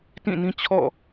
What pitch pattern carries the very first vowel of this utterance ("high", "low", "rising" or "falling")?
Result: falling